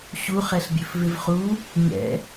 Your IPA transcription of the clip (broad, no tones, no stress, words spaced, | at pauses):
ɕuχɛɬbʲɵfvɪv χu | ɲɛ̰